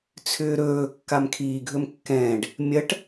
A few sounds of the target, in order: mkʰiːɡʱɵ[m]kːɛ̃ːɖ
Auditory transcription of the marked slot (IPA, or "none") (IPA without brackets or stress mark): m